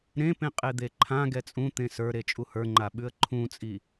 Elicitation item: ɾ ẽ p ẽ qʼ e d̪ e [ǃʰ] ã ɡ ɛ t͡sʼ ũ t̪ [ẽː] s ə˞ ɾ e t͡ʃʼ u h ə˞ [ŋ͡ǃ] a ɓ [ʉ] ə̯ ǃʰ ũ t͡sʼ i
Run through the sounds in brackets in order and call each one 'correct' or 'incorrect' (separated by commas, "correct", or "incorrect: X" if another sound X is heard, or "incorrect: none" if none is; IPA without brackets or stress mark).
correct, incorrect: ẽ, correct, correct